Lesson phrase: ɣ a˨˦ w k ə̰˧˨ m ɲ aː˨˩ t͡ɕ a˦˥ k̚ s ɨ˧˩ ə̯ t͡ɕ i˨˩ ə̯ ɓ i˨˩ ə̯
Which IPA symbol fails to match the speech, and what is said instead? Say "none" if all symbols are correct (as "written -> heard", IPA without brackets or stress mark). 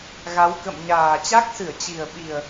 none